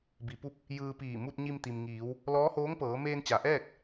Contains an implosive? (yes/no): no